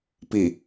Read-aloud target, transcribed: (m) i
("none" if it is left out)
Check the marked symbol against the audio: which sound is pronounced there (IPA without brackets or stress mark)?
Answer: p